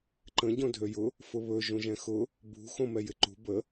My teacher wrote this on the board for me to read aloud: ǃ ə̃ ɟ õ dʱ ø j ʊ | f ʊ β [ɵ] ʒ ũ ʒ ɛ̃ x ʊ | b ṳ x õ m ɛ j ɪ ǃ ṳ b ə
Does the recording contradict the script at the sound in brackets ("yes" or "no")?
no